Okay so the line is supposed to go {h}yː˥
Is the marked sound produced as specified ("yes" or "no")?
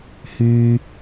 yes